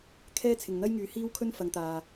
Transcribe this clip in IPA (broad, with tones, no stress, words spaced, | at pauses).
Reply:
kʰɛː˥t͡sʰɪ˨ŋn̪ɐ˥jŋyː˨˥ hiː˥wkʰɵ˥nfɐ˨˧ŋt̪aː˨